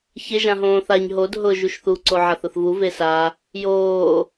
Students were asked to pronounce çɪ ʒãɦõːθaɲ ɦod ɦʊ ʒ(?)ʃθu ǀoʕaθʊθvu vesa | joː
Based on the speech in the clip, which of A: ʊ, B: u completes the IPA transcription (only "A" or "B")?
B